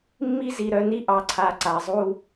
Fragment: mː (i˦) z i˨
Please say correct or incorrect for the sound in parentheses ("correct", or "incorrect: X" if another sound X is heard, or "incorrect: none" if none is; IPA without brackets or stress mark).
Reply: correct